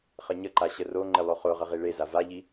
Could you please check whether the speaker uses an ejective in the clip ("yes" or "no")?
no